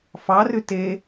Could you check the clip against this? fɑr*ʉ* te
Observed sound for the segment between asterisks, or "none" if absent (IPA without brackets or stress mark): ʉ